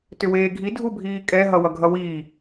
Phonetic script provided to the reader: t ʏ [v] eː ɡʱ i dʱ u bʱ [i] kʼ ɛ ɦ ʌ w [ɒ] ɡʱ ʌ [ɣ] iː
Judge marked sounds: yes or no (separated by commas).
no, no, no, no